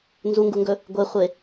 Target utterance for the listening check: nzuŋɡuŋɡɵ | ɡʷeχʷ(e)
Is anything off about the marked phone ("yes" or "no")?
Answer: no